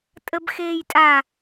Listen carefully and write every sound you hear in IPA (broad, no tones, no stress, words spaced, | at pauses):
tʼəbxeːjtʼa